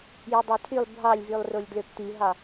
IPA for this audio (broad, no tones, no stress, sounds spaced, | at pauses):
j ɯ dˤ o tʰ y lˠ bʱ ɑ lʲ v y lˠ r o lʲ d l ø p t̪ i ɦ ɑ